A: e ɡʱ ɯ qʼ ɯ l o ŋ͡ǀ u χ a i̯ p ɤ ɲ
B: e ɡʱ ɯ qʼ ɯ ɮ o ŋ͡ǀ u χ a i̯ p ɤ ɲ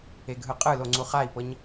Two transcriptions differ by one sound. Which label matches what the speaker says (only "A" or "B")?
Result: A